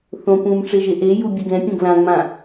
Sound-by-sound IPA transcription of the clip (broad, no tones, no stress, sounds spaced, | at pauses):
θ õ p ũː m ʈ͡ʂ e ʒ e ʔ e j u bʲ ɨ ɡ ɛ̃ pʲ ũ ɡ l ã ŋ͡m ã